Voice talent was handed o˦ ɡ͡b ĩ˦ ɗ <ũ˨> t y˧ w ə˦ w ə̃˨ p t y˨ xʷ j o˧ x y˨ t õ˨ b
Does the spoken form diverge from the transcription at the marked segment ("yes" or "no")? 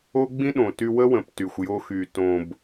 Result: yes